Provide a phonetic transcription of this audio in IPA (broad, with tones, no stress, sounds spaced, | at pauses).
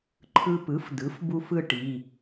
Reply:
ǃʰ ɯ˧ p ɯ˩˥ f d ɯ˩˥ f b u˧ f ɯ˥˧ ʈ i˩˧˩